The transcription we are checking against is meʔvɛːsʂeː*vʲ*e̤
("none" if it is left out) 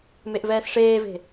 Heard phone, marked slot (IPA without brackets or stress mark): v